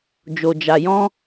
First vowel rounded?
yes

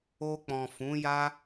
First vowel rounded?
yes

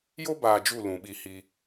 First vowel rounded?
yes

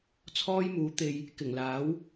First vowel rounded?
yes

